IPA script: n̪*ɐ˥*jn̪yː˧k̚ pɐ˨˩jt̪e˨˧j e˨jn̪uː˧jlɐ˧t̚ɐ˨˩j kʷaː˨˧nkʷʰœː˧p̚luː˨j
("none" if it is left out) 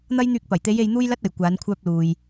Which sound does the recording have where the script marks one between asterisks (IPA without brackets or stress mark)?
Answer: ɐ˥